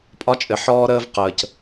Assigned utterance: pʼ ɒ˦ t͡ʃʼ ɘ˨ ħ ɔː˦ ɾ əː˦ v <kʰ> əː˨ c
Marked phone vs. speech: incorrect: q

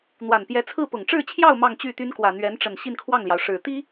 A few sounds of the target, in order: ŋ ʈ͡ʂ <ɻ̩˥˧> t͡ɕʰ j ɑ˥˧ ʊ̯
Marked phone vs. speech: correct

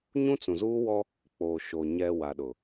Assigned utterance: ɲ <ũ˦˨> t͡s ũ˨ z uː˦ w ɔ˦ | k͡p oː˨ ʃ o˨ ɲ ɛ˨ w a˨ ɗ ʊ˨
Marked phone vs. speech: incorrect: ũ˦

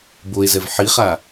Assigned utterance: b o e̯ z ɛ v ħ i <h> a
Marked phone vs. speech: incorrect: χ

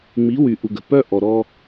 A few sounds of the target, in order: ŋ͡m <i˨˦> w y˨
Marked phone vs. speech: correct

